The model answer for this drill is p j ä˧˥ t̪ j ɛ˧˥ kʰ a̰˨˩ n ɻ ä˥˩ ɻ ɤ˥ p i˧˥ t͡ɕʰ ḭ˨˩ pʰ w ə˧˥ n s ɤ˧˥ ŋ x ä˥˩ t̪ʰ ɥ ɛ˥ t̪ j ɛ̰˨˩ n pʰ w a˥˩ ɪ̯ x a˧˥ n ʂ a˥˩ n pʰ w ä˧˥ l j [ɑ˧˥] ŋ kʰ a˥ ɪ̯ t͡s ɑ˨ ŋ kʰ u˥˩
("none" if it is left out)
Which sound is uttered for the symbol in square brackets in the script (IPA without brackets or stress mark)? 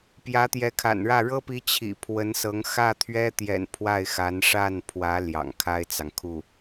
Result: ɑ̰˨˩